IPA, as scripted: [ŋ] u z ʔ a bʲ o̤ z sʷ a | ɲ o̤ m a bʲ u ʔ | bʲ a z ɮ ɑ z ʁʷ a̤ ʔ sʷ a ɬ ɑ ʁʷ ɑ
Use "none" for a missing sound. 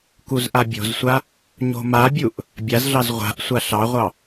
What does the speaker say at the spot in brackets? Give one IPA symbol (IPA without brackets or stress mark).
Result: k